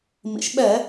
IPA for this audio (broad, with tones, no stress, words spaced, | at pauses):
mḭ˩˧ʃɓɛ˧˩˧